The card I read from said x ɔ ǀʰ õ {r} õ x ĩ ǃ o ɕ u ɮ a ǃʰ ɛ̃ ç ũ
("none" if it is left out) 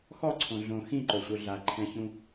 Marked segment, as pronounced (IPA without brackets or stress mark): ɮ